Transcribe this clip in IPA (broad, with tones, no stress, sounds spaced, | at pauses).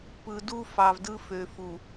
p ɯ˨ d u˦ f ɑ˨ v d ɯ˦ f ø˨ f u˨